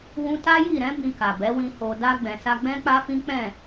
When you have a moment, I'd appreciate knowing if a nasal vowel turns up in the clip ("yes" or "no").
yes